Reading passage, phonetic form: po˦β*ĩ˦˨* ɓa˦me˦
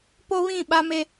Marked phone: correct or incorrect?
correct